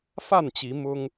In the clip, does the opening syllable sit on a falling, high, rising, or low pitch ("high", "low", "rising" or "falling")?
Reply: falling